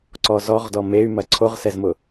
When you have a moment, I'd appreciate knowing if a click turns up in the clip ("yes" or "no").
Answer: yes